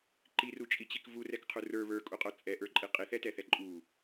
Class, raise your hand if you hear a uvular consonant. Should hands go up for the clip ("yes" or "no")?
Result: yes